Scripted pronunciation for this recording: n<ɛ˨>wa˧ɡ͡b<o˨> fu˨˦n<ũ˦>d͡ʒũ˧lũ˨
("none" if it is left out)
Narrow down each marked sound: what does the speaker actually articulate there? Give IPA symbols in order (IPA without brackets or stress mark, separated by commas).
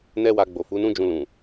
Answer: ɛ˦, o˨, ũ˦